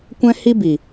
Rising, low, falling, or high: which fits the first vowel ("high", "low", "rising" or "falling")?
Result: high